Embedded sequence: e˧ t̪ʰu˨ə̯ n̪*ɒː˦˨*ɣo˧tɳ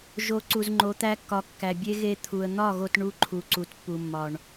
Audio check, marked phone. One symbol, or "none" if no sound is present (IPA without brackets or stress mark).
ɒ˦˨